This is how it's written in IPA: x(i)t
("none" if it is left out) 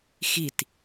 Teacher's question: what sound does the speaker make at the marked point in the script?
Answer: i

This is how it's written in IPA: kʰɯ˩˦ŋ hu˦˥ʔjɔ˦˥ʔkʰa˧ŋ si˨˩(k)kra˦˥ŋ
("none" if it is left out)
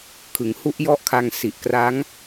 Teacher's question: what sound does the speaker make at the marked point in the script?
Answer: ʔ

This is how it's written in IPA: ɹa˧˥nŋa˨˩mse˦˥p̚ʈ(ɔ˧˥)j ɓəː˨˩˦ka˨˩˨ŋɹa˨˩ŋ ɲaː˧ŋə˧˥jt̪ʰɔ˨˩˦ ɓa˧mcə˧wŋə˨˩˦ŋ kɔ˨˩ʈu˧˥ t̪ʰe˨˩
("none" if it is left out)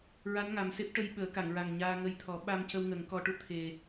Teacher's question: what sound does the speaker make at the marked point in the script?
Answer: ə˧˥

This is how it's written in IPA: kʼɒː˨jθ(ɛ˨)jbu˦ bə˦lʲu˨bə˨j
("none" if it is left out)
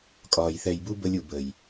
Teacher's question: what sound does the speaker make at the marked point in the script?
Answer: ɛ˨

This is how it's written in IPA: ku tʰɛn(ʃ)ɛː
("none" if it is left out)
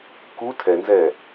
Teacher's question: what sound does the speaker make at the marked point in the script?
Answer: z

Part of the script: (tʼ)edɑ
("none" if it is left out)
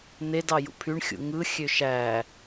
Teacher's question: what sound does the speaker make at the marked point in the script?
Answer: n̪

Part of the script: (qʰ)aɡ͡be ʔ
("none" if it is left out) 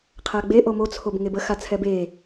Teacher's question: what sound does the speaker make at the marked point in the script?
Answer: qʰ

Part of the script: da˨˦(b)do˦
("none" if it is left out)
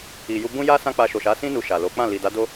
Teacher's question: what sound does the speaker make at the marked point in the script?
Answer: none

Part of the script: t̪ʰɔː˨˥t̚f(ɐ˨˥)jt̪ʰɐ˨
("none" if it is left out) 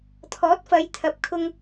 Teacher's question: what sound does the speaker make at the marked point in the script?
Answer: ɐ˨˧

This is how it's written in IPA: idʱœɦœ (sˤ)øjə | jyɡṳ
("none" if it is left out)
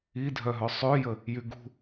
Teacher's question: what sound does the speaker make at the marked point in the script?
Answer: sˤ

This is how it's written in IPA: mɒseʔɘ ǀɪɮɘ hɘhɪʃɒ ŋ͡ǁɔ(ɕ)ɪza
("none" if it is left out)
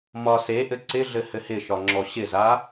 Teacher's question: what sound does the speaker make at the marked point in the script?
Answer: ɕ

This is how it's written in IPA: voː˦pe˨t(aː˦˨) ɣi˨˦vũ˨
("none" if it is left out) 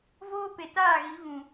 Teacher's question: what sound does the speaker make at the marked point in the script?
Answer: aː˦˨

